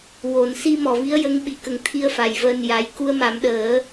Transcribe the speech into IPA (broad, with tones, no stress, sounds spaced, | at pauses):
w o˨˩ n s i˧ m ɔ˨˩ v i˧˥ ə̯ j ə˧˥ ŋ ɓ i˨˩ k ə˨˩˦ ŋ t̪ʰ i˧ ə̯ f a˨˩ j v əː˧ n j a˧˥ j k u˧ ə̯ m a˨˩˦ m ɗ əː˨˩˦